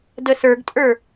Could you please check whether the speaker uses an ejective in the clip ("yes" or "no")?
yes